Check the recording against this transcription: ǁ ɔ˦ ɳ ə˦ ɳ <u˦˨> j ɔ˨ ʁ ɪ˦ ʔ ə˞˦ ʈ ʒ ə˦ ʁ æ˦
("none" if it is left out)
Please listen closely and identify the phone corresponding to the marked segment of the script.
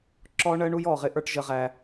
u˦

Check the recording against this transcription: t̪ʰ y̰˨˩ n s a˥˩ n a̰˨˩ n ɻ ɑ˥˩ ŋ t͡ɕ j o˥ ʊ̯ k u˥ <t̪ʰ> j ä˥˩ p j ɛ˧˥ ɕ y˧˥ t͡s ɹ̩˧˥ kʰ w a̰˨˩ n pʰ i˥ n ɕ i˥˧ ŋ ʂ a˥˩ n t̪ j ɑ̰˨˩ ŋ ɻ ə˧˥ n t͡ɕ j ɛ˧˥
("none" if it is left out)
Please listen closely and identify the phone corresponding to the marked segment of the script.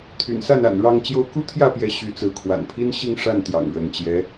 t̪ʰ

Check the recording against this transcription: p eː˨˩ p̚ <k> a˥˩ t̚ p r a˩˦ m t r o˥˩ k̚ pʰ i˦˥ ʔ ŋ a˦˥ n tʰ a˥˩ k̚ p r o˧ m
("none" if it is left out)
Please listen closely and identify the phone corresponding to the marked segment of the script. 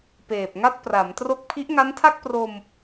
ŋ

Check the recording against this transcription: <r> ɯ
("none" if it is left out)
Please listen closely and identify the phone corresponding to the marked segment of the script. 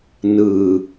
n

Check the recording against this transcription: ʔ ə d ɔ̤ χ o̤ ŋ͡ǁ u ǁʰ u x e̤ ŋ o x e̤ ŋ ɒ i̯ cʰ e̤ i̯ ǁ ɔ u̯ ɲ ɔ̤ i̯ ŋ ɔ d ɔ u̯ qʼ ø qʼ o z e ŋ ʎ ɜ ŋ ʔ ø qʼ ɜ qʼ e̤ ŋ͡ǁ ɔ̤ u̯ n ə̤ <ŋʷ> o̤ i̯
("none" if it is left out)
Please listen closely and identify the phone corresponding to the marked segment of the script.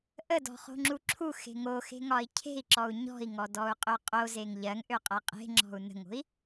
ŋ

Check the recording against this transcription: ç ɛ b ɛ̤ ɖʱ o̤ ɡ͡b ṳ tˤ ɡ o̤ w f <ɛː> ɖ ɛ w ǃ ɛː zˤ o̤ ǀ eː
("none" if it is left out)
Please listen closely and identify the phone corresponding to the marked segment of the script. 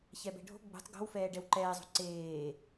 ɛː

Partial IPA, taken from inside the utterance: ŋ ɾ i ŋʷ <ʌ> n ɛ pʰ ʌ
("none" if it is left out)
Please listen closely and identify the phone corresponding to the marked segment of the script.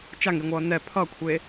ʌː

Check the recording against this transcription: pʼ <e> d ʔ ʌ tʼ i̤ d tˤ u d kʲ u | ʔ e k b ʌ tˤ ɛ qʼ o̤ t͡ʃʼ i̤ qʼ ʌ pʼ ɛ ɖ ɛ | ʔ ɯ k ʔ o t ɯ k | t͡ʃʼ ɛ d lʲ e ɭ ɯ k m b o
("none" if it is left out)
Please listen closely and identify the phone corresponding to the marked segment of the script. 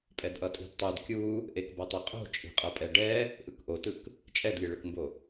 ɛ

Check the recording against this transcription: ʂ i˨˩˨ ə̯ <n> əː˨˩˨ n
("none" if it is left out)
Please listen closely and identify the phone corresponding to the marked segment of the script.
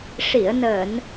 n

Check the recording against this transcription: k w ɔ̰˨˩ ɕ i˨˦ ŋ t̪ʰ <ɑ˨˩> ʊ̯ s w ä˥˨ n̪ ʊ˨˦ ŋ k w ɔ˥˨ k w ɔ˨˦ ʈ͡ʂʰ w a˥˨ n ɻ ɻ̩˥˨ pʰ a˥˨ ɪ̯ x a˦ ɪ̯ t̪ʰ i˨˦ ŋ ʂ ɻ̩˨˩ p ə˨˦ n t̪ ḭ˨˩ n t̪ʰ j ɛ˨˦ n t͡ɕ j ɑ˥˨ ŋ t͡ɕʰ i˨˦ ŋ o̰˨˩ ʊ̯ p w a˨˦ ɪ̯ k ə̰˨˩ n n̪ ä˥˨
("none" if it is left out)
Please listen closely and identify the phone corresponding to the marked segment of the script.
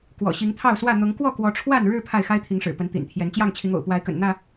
ɑ˥˨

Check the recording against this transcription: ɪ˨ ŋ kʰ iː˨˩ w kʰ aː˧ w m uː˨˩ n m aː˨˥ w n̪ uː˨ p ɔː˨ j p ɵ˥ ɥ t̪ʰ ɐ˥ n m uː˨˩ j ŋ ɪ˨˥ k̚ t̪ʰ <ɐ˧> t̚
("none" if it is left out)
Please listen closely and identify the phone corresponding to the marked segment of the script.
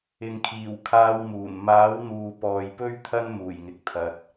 ɐ˧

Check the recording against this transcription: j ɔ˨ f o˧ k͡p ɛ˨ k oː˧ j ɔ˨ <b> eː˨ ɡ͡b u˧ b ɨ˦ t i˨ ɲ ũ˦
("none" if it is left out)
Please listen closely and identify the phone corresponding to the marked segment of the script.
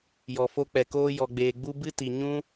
ɡ͡b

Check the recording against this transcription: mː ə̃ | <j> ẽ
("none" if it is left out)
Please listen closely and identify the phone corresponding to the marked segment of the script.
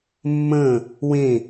w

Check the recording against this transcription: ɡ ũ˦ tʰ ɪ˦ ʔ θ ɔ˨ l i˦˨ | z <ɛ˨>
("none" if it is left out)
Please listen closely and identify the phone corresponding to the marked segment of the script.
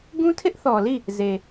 e˨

